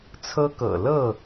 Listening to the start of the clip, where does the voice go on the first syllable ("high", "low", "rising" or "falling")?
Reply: high